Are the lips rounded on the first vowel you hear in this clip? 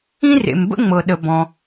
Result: no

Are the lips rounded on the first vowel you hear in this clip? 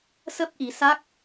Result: no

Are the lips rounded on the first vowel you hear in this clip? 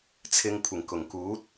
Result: no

